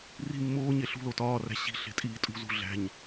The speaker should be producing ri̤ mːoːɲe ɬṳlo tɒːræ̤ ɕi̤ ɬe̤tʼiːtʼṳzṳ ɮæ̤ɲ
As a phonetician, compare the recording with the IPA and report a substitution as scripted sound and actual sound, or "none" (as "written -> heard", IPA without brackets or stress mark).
none